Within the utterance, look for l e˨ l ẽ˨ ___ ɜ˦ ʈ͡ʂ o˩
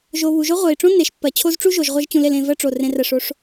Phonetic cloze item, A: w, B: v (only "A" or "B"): B